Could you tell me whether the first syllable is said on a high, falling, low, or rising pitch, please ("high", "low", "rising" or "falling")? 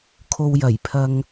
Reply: low